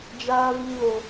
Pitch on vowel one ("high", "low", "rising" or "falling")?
high